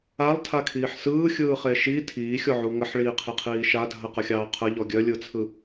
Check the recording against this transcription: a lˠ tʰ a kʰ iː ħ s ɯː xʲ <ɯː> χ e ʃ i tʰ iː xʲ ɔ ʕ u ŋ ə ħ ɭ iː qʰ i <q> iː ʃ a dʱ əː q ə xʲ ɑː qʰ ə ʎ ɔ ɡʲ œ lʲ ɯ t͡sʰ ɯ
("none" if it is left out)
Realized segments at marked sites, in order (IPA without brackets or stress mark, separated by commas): ɯː, qʰ